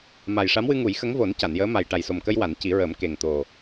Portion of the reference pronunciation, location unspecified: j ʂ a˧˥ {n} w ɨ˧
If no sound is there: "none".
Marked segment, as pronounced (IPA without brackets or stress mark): m